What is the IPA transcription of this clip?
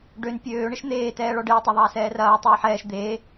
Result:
ɖ ø n pʲ øː ɳ ɪ ʃ n̪ eː t ɛː ɭ ɔ ɖ ɪː tˤ ɐ ðˤ ɐː s ɛː r ɐː tˤ ʏː ħ ɛː ʃ d̪ eː

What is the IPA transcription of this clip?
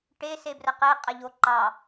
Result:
ʈ e s e b r ə q e qʼ ə ʎ o ǃ ɑ

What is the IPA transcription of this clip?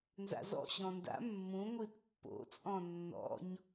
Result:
n z a̰ z ɔ̰ ɕ ɔ̃ n d a̰ mː ũ ŋʷ ɨ t pː o̰ t͡sʼ ɔ̃ nː ɔ̰ ɲ

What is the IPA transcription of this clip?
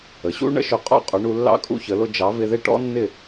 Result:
ə˩ ɕ ṵ˥ ɳ ə̰˥ ʃ ʊ˧ qʼ ɔ̰˥ qʼ ʊ˩˥ ɳ u˧ lː ɑ̰˥ kʼ ṵ˥ ç ə˩˥ l ʊ˧ d͡ʒ ɑ˩˥ v ɪ˧ ð ɪ˥˩ ʈ ɔ̰˥ nː ɪ˥˩

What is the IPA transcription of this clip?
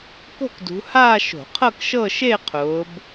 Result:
k o̤˥˧ k d ṳ˨˦ h aː˥˧ ʃ o̤˧˩˧ qʰ ɤ˥˧ k ʃ ɤ˥˧ ʃ e˥˧ qʰ ʊː˨˦ b

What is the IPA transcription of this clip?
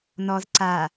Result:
n ɔ z ǀ a

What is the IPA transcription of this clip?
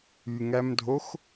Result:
y ŋ æ m dʱ o x

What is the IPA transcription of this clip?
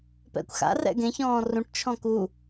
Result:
p ɛ̰ kʷ x a̰ r ɛ̰ ɡ ẽ ç ɔ̃ː r ũ ʈ t͡ʃʰ ɔ̃ k u

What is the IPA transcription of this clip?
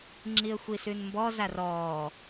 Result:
ŋ͡ǁ i ə̯ xʷ i s ʉ n m b ɔ z a r ɔː

